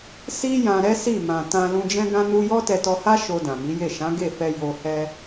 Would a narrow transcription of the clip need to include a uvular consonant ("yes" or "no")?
no